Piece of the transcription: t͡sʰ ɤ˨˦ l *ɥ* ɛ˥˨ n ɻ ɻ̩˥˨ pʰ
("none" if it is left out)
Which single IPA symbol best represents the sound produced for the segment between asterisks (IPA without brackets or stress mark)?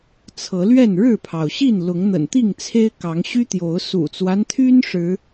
ɥ